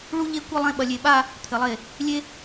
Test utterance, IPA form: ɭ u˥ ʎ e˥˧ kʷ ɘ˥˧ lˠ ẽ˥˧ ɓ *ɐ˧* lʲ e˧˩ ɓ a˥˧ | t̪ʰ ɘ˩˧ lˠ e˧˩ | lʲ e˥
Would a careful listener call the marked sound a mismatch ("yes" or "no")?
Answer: no